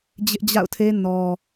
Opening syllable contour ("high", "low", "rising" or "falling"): high